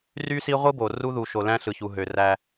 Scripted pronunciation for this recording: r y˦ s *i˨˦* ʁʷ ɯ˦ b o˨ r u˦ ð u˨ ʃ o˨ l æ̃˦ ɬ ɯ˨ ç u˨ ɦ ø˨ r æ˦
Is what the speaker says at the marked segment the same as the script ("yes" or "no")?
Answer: no